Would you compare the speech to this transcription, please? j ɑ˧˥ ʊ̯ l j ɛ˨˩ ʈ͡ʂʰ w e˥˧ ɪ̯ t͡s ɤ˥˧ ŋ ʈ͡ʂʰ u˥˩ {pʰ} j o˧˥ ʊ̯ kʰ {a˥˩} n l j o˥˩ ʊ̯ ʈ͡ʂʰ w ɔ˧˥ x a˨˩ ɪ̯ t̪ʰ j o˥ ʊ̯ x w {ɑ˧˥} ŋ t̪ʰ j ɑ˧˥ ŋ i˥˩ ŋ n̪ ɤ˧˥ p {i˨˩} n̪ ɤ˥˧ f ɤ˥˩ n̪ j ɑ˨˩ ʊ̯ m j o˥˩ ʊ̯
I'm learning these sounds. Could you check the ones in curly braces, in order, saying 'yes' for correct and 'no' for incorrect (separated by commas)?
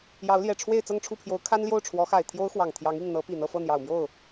yes, no, no, yes